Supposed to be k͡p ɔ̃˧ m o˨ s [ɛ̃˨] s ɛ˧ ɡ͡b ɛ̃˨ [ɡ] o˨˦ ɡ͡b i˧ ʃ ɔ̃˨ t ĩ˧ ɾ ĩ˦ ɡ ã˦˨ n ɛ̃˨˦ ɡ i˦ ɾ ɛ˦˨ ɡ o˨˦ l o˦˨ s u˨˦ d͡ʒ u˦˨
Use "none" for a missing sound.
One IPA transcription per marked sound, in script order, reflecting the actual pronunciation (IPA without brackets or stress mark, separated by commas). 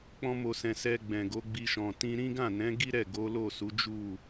ɛ̃˨, ɡ